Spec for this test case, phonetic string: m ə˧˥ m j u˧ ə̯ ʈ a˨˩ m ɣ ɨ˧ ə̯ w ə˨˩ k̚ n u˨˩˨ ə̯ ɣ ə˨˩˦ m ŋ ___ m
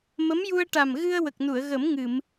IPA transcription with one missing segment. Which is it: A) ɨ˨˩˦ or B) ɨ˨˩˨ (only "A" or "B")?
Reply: B